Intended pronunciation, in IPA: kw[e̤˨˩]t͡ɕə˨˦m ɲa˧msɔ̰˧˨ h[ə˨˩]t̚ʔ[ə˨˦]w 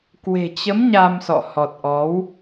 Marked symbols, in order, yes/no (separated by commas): yes, no, no